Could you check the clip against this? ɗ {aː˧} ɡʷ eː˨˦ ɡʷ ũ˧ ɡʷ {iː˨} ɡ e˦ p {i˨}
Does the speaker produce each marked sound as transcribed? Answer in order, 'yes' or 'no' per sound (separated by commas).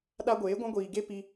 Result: no, yes, no